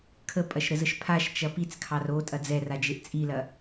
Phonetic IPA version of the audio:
kʰəpʼɐʃɾəzəʃ pʰaʃt͡ʃɐ pit͡skʰɑr otʼɐ d͡zɛrad͡ʒeʔ t͡sʼilɐ

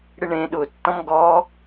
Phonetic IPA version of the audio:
ɽɪɳẽ ɗʊ tːɔ̃mɡɔ

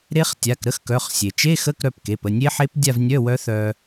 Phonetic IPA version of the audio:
ɾe˦˥χtʲa˩˧˩k ɾə˧˥˧xkœ˩˧˩χsʲe˩ t͡ʃe˧˥˧xə˧˥˧k ɾœ˩˧˩pke˩˧˩pə˩˧˩ nʲe˦˥ħe˦˥p dʲa˥˧vnʲœ˧˥˧wœ˦˥ θœ˧

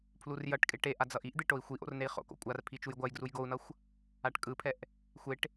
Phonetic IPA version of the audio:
pʰlurjʌʈkʼe ʈe ʔad͡zʌʔiʔd̪e ʈoi̯xʷiʔo̰r nei̯χo̰ko̰ kʷʼar pʰit͡ʃujɡʷajɡruj ɡou̯nʌxʷ | aʈkʼɯpʰɛʔ | xʷeʈ

